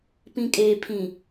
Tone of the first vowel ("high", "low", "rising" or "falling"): low